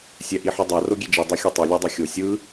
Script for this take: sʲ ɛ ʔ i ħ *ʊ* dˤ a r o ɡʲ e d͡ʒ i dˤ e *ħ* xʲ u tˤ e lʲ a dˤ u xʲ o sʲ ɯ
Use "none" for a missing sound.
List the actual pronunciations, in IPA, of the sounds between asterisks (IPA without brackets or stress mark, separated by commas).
u, none